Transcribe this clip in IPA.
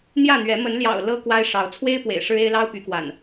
n̪ j ä˥˨ n̪ ɥ ɛ˨˦ m ə˨˦ n l j ɑ̰˨˩ ʊ̯ l ɤ˦ k w a˦ ɪ̯ ʂ ɑ˨˦ ʊ̯ t͡sʰ w e˦ ɪ̯ p w ḛ˨˩ ɪ̯ ʂ ɻ̩˦ e˦ ɪ̯ l ɑ˦ ʊ̯ p y˨˦ k w a̰˨˩ n

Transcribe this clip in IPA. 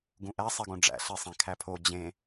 ɡ ũ ʔ æ sˤ i ɡ õ ɖ͡ʐ æ̰ ɬ e sˤ ẽ kʰ æ pʰ o d͡ʑ ẽ

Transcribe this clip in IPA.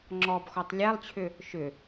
ŋ͡ǁ ɔ b x ɔ tˤ lʲ ɛ lˠ t͡ɕʰ ʏ | ʃ ʏ

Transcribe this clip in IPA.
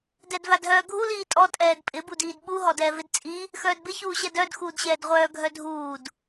d ɛ d v a d ɦ œː ɡʱ u l iː tʼ ɔ tʼ ɛː d pʼ ɪ b u d iː d ɓ u ɦ ɔ d ɛː v ɪ d t͡sʼ i | x œː d b ɪ ç uː ɕ ɛ d œ d x uː d ɕ ɛː d ʁʷ œː ɡʱ œ dʱ uː d

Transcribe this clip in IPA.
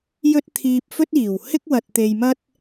j ɵ˥ t̚ t̪ʰ iː˧ p̚ f ɵ˥ t̚ iː˨˩ w h ɪ˥ k̚ w ɐ˧ t̚ t̪ e˧ j m ɐ˥ t̚

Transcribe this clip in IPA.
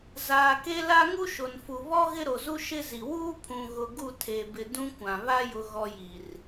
z aː˨ k e˦ l a˦ ŋ u˦ ʃ o˨ n f u˨ β ɔ˦ ɣ ɪ˦ ɾ o˨ z u˦ ʃ ɪ˦ z i˨ w uː˦ pʰ ũ˨ ɣ ʊ˨ ɡ u˦˨ tʰ e˨ b ɪ˨ d ũ˦ kʷ ã˨ β a˦ j ʊ˨ ɣ ɔ˨ j i˨ r

